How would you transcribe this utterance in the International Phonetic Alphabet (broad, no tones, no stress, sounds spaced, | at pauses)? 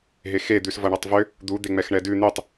ɦ e x e d̪ ʉ s v ʌ ɳ ʌ tˤ v ʏ | d̪ u d̪ e ŋ͡m ɛ x ɳ ɛ d ʉ n̪ ʉ tˤ